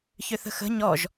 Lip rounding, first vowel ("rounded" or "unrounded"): rounded